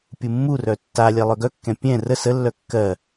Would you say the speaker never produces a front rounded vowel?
no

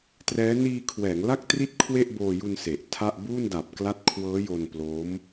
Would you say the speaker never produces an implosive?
yes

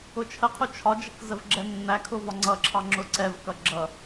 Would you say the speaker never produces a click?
no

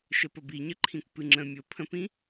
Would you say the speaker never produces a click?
no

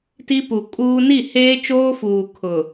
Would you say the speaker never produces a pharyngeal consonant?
yes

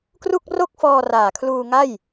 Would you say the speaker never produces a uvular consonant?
yes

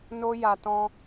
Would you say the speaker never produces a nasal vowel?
no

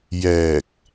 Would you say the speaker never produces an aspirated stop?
yes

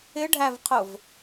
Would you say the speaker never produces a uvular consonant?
no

